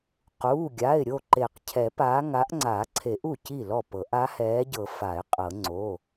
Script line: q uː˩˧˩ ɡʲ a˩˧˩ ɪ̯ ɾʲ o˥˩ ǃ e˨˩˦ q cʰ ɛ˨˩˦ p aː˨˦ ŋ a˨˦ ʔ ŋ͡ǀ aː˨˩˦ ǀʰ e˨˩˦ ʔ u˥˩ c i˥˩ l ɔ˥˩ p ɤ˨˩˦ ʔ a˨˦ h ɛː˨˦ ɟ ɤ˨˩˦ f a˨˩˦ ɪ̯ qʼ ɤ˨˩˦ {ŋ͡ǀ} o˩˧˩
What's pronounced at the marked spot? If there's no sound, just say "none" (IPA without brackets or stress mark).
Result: ŋ͡ǀ